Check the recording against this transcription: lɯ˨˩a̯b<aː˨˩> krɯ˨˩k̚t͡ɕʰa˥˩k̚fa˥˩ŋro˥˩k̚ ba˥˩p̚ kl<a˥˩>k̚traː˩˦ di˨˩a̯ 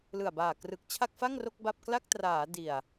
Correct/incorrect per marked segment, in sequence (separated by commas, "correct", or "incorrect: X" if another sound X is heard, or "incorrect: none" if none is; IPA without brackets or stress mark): correct, correct